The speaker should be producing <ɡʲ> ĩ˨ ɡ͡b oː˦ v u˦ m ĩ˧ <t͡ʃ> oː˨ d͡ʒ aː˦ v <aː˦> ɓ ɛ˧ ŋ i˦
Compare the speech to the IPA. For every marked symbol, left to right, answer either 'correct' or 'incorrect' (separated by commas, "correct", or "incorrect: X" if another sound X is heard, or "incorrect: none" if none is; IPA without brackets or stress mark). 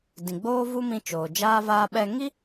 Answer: incorrect: d, correct, incorrect: aː˧